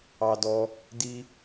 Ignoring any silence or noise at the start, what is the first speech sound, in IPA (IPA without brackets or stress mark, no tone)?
ɑ